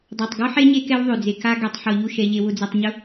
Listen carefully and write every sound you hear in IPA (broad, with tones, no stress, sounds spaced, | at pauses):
dˤ a˨ tˤ ɡ ɔ˦ ħ e˦ ɲ e˦ k ɛ˦ w ðˤ ø˨ d͡z e˨ k a˦ ɡ ɛ˨ tˤ ħ ɔ˨ ʎ u˦˨ ʃ ɛ˨ ʎ e˨ w ʊ˨ d͡z ɛ˨ tˤ ɲ ʊ˦